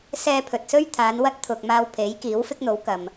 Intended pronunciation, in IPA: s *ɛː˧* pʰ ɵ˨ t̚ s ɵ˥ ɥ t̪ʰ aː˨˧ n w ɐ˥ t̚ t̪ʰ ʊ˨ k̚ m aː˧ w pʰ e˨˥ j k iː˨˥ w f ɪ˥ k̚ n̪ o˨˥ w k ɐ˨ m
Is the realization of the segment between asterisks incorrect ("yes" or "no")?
no